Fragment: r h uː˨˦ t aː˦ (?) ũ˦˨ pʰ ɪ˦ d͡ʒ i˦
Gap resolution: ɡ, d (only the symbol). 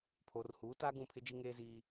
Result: ɡ